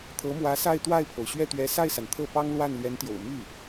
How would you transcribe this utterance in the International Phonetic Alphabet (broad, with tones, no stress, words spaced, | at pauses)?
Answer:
t̪ʰɤ˧˥mwä˧˥sa˥˧ɪ̯ t̪wa˥˩ɪ̯pʰo˩ʊ̯ ɕɥɛ˥˩t̪ɥɛ˧˥ sa˥˩ɪ̯sa˩n t̪ʰɤ˥˩ pɑ˥ŋlwa˥˩n lɥɛ˧˥nt̪jo̰˨˩ʊ̯ my˥˩